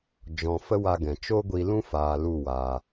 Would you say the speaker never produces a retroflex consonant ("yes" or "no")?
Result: yes